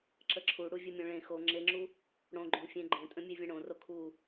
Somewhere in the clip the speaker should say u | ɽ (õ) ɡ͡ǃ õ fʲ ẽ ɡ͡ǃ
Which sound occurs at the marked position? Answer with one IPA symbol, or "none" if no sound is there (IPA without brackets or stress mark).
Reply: õ